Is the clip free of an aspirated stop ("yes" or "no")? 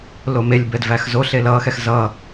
yes